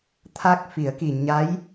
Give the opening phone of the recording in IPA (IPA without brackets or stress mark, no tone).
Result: t̪ʰ